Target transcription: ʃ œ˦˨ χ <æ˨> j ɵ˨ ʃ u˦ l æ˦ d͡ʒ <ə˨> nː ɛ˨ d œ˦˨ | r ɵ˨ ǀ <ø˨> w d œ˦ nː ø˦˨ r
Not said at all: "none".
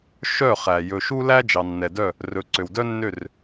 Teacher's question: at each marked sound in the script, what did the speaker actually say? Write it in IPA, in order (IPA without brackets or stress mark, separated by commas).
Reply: æ˨, ɑ˨, ø˨